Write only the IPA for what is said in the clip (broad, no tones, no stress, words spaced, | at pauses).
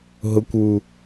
ɦʊkʷwu